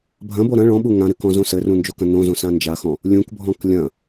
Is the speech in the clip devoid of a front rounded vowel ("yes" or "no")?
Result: yes